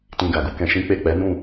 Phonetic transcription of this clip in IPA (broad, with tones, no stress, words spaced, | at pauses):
tĩ˧ɡa˨ɡu˧kɛ̃˧ ʃĩ˦k͡pe˦˨ k͡pɛ˨˦nũ˦˨